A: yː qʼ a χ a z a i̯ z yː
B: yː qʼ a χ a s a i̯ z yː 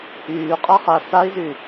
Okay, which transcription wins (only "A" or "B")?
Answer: B